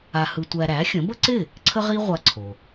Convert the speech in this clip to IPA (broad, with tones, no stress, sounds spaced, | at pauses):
a˧ h ɯ˧ tʷ æ˧ ɾ æ˩˥ xʲ ə̃˩˥ b ə˥ ǀ ɪ˥˩ | ǀʰ ə˥ ʁ i˥ ʁʷ a˧ ǀʰ o˩